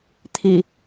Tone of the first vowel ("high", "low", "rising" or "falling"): low